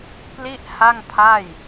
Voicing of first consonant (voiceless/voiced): voiceless